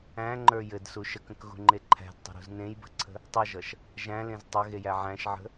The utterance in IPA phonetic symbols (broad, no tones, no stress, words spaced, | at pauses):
æ̃ŋ͡ǃə˞ jɘdsu ʃəkə̃kɣṳŋ͡ǃe ǃʰæ̤dtˤə̤ɾṳz nẽjbə̤ǀʰə̤ | tˤʌʒʌʃ | ʒæ̃lẽz tˤɘɣejæ ʕæ̃ʃʕə̤